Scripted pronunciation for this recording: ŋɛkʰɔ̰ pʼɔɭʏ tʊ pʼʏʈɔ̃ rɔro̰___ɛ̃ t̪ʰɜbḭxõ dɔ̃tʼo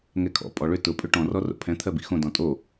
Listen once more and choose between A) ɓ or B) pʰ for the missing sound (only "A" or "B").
B